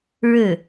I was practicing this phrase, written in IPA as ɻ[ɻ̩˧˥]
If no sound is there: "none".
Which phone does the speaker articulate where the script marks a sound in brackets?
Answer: ɻ̩˥˩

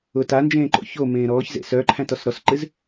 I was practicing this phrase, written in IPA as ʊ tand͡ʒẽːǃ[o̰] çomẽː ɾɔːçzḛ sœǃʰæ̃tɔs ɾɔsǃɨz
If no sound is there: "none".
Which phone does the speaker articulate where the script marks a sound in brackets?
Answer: o̰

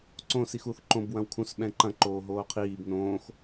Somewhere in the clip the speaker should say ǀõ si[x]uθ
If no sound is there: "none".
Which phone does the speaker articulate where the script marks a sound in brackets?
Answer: x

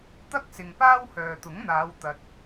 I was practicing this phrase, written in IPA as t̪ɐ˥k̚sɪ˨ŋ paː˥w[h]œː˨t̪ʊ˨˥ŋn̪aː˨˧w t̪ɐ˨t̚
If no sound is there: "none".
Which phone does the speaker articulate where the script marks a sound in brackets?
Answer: h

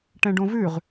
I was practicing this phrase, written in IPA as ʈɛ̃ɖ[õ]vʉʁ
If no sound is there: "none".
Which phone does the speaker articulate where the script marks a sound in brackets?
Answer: õ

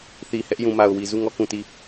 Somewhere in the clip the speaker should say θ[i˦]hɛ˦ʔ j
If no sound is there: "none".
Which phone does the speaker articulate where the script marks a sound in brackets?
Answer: i˨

